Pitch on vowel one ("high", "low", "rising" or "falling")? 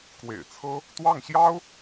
low